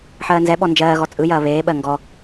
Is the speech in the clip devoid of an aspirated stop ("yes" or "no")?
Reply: yes